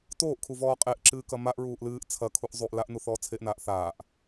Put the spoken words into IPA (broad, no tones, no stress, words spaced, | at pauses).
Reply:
toːʔkʰuvɔː qʼeʔǁɨːkɐ maʔ ɹuːʔlɨːʔ t͡sʰɐ kʰuʔzˤuʔ laʔnuθɔː t͡sʰeʔnaːʔ θaːʔ